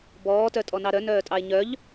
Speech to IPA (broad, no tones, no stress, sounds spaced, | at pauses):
b ɔː t œ tʼ ɔ n ɑ ɾ œ n œː tʼ ɑ e̯ ɲ œ ʎ